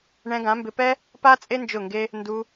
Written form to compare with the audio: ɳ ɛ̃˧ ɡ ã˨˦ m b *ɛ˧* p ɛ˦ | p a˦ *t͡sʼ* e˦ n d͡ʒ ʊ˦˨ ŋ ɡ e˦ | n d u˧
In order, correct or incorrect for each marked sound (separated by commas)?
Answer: incorrect, correct